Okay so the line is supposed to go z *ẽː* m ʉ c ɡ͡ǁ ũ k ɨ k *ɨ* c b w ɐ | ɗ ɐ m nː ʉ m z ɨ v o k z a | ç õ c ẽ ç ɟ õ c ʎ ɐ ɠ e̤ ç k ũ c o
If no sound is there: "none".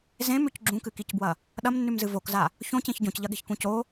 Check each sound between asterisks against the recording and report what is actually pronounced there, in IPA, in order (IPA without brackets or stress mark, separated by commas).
ẽ, i